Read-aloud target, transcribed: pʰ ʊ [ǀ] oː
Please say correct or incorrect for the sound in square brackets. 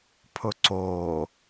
correct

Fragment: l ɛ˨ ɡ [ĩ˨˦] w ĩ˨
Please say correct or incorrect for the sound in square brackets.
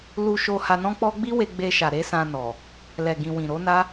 incorrect: ĩ˨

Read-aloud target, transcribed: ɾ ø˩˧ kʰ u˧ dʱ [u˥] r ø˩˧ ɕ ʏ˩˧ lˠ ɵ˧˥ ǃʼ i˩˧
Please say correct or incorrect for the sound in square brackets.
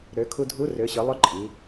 incorrect: u˧˥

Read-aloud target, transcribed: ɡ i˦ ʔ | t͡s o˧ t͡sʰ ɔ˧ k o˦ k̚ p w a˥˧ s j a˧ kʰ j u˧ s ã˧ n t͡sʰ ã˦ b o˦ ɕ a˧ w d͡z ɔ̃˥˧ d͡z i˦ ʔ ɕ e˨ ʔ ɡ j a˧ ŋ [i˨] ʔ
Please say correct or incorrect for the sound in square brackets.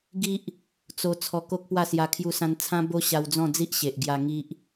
incorrect: i˦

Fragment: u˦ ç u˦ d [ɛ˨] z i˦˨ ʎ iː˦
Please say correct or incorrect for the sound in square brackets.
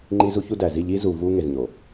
incorrect: æ˨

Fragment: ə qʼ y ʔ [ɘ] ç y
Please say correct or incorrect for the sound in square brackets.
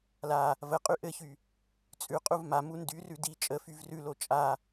correct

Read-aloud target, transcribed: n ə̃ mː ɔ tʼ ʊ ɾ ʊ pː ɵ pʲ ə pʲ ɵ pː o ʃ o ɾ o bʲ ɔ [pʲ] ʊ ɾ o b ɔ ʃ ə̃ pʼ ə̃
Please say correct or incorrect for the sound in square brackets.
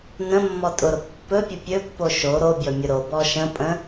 incorrect: mʲ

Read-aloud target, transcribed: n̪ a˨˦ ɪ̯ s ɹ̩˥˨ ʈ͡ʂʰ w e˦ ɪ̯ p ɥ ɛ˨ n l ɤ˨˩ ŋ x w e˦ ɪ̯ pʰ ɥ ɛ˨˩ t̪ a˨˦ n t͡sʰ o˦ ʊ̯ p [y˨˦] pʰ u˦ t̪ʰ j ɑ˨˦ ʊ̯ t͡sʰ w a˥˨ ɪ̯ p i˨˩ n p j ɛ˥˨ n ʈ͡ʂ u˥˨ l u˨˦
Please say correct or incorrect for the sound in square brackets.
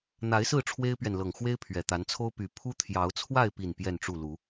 correct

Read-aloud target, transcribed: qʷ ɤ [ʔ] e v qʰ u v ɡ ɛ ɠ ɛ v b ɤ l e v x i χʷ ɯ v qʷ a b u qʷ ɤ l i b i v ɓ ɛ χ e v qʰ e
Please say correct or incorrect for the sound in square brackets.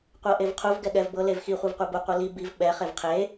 correct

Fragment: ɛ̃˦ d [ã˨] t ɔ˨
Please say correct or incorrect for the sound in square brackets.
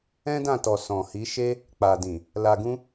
incorrect: ã˦˨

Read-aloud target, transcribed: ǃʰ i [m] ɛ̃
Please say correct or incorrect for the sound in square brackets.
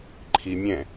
incorrect: mʲ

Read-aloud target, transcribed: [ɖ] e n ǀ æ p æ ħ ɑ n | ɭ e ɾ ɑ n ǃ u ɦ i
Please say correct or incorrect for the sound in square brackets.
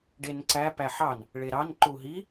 correct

